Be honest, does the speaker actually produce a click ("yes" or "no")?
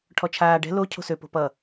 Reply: no